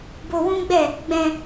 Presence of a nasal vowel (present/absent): present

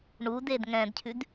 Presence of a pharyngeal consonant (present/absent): absent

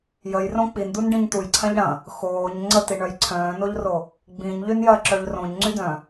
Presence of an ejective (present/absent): absent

